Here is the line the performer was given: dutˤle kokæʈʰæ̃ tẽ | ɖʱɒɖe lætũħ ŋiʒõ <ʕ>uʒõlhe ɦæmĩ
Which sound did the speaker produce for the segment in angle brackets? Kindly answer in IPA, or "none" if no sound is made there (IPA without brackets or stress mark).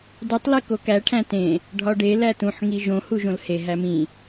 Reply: h